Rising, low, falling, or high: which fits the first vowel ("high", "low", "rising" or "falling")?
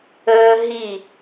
high